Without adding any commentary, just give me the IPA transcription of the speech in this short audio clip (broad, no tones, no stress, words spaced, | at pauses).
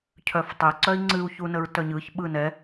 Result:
cʰœftˤe ǀœi̯ŋ͡ǀɨu̯çunəɹ tœɲɯç ɓɯnɛ